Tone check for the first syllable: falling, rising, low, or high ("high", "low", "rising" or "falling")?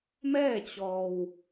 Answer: falling